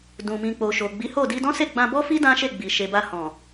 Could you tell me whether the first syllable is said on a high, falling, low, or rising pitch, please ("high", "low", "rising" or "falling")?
low